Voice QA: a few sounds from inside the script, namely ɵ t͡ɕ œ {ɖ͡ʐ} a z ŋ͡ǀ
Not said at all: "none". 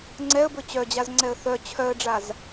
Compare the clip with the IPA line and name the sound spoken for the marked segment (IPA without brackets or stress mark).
d͡ʑ